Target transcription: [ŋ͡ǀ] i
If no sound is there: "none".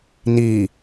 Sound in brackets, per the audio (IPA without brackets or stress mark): n